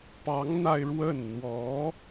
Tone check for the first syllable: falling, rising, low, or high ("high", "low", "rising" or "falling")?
rising